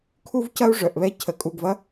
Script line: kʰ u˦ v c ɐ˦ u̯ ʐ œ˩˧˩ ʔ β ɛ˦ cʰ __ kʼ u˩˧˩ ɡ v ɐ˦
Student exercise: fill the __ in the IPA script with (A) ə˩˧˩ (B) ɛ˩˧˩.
A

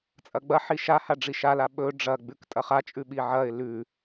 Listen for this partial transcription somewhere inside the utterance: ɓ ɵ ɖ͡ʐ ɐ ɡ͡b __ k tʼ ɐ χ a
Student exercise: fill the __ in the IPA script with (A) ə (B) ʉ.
B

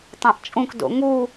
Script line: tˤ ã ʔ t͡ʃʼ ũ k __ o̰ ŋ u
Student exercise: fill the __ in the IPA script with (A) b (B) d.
B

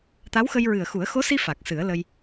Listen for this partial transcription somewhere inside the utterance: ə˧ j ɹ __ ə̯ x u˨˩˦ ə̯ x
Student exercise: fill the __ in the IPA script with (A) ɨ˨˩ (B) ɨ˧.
A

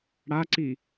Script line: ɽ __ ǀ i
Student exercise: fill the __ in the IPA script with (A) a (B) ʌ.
A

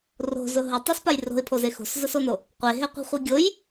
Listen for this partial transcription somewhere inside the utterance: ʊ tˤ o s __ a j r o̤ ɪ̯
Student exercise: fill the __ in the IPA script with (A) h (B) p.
B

